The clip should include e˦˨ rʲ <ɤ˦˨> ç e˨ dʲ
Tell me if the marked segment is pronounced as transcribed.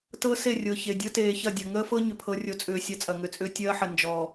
no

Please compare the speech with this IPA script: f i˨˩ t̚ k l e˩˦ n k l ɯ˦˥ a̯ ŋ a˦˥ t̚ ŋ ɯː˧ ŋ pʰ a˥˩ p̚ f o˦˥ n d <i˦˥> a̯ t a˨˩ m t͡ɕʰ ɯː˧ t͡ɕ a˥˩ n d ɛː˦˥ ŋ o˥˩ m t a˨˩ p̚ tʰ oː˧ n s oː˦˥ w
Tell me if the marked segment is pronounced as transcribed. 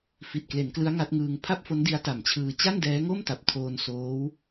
yes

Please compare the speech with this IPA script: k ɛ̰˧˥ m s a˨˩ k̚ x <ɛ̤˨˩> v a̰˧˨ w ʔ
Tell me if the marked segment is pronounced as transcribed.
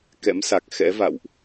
no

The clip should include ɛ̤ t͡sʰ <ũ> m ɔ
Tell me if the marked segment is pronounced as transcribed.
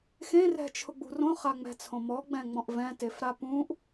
no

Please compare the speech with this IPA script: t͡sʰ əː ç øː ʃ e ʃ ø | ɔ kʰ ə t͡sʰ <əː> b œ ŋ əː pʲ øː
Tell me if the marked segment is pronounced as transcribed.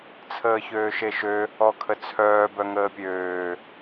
no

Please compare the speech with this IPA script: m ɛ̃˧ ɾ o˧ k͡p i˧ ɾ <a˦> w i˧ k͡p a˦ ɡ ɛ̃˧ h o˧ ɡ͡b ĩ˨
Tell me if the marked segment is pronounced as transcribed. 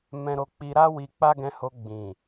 yes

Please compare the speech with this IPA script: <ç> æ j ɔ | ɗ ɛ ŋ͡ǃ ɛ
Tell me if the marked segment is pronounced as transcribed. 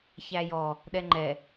yes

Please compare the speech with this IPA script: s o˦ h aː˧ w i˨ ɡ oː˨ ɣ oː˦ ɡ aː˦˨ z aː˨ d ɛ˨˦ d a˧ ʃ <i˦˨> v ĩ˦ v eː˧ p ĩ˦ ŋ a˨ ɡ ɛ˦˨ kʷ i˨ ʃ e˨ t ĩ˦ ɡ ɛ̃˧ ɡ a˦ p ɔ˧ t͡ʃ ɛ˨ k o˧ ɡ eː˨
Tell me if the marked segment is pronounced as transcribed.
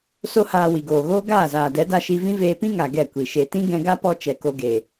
no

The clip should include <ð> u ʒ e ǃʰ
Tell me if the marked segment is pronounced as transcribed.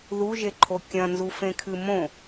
yes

